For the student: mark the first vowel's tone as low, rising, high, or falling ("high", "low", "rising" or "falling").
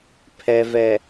low